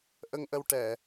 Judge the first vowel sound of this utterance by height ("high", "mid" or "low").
mid